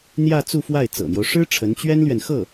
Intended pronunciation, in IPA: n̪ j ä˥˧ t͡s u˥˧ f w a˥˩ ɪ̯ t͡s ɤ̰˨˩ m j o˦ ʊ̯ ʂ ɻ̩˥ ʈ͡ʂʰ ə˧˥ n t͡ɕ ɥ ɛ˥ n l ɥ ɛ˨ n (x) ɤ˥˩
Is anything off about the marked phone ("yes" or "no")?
no